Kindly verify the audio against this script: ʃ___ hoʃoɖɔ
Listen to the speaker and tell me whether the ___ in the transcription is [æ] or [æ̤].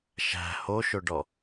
æ̤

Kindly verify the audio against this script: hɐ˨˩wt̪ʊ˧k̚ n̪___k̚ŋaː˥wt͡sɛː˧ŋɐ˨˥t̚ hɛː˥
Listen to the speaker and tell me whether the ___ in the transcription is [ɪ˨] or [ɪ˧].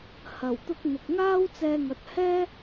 ɪ˨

